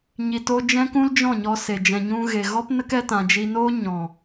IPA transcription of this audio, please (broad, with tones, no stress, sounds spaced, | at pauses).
ɲ i˨ t o˧ d͡ʒ ɛ̃˦ k ũ˦ l d͡ʒ ɔ̃˦˨ ɲ ɔ˧ s e˨ d͡ʒ ɛ̃˨ ɲ ũ˧ ɣ e˨ ɣ ɔ˦ p n ə˦ k ɛ˧ t ã˨ d͡ʒ i˧ n oː˦ ɲ ɔ̃˨